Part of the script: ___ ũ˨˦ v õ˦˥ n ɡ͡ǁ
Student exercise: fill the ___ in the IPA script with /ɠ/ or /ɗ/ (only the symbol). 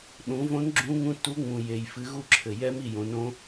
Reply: ɗ